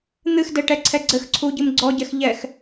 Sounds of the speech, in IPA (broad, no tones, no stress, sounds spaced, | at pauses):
n̪ ɨ x d ɛ ʈ ɛ ǀʰ ɛ ɡ͡ǀ ɘ x ǀʰ u ɟ ɨ m ɡ͡ǀ ɔ ɟ ɛ x ʎ ɛ x